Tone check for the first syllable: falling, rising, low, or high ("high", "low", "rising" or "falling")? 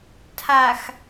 low